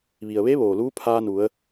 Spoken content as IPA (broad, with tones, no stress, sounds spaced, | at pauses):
ʋ i˩ ə̯ ʋ e˧˥ ʋ oː˩ l uː˧˥ pʰ aː˧ n u˩˧ ə̯